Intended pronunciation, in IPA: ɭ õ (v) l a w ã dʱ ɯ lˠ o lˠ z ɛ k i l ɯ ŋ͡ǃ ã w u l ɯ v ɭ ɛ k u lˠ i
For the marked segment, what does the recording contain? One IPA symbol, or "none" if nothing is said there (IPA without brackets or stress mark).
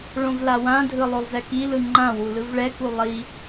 v